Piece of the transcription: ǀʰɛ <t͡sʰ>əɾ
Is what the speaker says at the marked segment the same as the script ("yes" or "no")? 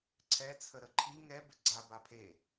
yes